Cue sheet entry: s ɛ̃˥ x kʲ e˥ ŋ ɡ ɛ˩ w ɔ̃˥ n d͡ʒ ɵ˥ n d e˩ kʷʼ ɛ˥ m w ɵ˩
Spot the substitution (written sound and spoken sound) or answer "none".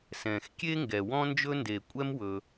ɛ̃˥ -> ɛ̃˩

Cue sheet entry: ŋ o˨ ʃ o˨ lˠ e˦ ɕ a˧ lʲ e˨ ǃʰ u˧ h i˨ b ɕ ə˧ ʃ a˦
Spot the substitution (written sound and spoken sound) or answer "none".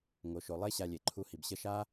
none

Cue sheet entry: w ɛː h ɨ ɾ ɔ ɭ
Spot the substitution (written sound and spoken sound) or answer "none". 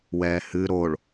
ɔ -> o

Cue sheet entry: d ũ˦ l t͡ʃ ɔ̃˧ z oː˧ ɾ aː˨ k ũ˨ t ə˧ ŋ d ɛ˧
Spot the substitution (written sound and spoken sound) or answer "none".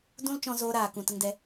none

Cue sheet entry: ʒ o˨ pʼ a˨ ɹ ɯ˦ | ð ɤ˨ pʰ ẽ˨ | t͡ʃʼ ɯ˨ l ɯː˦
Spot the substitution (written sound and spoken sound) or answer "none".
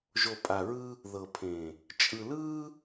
none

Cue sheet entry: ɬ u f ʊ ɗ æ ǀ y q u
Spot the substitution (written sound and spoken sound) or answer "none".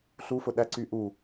q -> ʔ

